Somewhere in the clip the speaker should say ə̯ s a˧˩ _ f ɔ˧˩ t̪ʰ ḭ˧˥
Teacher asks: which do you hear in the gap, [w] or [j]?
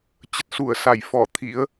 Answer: j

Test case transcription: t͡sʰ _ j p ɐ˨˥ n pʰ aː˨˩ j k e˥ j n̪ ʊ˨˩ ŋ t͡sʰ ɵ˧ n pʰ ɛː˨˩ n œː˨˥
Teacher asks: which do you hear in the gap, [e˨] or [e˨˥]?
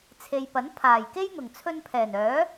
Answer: e˨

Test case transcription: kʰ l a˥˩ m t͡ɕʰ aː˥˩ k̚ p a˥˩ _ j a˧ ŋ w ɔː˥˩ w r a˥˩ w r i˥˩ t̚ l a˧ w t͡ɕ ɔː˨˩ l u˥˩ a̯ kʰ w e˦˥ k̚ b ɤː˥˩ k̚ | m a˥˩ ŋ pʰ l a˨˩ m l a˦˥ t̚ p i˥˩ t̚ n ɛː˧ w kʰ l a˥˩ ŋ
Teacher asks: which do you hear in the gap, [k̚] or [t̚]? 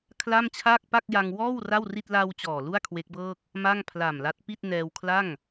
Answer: k̚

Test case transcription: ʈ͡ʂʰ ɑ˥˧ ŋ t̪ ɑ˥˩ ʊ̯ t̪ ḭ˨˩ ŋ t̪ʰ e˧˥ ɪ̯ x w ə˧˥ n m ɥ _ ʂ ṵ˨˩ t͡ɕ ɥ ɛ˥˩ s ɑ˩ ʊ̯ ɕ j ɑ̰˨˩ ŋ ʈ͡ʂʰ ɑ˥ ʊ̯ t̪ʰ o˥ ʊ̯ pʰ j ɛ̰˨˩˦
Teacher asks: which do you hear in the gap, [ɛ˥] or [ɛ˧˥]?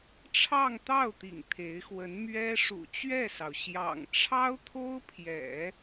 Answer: ɛ˥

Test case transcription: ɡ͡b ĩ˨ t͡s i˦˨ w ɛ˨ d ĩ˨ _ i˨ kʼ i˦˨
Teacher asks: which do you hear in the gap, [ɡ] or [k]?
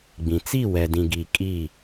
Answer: ɡ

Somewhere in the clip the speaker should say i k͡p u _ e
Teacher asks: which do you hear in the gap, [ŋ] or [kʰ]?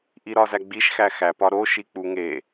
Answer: ŋ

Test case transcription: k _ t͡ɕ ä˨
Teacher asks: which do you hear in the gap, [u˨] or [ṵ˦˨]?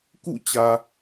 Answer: ṵ˦˨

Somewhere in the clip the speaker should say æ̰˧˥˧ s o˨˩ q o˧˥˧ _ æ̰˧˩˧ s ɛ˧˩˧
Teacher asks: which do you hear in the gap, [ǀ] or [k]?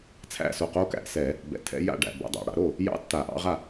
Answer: k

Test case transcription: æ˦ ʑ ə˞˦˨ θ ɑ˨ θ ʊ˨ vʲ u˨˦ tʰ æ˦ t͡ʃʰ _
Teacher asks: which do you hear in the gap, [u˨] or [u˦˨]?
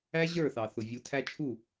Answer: u˦˨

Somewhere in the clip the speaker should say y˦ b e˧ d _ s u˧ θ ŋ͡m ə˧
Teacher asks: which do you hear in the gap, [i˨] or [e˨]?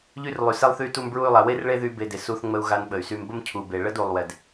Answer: e˨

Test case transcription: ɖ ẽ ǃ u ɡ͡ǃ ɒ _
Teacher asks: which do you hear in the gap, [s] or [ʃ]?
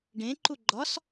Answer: s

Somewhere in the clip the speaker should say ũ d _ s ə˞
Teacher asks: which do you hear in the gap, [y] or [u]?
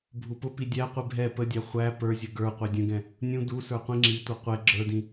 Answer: u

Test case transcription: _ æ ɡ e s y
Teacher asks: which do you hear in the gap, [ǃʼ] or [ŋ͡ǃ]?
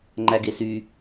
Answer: ŋ͡ǃ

